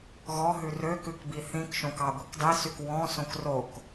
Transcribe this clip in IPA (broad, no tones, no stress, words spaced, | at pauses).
ɣɔɦʉ røkʉkbi θĩkʃõk ɑɡʷikdˤisyk wɔ̃ sõkrok